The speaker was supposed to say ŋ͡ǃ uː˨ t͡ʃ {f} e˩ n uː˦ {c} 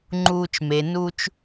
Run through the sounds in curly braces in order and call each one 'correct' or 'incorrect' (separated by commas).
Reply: incorrect, incorrect